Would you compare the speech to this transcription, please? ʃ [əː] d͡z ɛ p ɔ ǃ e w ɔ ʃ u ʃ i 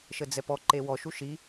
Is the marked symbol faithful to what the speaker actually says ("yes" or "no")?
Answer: no